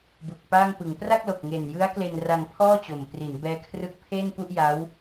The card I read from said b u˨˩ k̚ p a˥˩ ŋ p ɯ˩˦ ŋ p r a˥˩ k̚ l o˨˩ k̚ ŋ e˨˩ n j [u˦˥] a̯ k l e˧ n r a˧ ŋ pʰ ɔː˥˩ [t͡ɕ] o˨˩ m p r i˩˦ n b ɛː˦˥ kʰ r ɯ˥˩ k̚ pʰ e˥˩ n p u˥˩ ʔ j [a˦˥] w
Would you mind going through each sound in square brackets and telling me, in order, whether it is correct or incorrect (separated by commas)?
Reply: incorrect, correct, correct